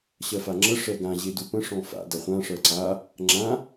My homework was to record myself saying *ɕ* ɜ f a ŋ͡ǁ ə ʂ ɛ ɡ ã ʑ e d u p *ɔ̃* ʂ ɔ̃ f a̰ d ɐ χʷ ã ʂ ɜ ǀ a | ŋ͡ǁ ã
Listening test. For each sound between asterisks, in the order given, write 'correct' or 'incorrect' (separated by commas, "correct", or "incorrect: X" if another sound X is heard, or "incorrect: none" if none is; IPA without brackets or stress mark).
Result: correct, incorrect: ə̃